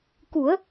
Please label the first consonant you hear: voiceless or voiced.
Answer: voiceless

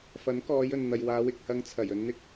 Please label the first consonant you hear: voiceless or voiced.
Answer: voiceless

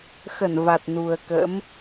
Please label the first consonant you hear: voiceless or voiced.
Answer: voiceless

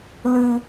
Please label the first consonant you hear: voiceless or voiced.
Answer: voiced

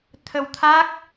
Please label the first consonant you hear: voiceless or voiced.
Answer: voiceless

